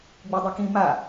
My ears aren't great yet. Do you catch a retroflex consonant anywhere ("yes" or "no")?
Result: no